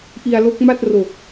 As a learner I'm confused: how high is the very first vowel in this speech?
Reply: high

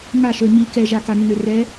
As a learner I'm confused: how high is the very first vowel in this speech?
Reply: low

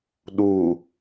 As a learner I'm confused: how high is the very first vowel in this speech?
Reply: high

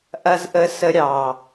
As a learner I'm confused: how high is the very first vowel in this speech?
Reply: low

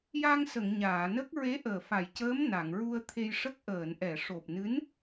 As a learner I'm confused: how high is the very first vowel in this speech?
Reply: low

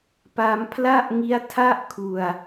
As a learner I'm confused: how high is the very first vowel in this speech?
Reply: low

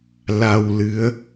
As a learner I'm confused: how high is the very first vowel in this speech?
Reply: low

